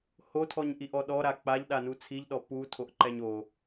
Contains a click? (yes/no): yes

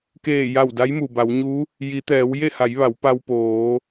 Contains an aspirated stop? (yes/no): no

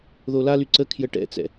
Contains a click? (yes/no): yes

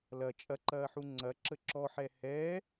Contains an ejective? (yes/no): yes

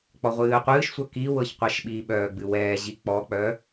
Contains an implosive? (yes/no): yes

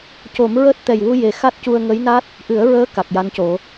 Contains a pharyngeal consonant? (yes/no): no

